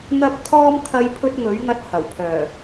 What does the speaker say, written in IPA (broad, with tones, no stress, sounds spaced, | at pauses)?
n̪ ɐ˧ p̚ t̪ʰ ɔː˧ m t̪ʰ ɐ˨˧ j pʰ ɵ˧ t̚ ŋ ɵ˨˥ ɥ ŋ ɐ˧ t̚ h ɐ˨˩ w pʰ œː˨˩